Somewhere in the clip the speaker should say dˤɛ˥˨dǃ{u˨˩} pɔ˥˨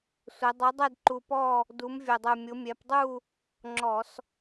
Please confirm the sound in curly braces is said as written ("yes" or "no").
yes